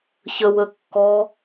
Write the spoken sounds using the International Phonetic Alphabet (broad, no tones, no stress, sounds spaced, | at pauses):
ç ə w ə kː ɔ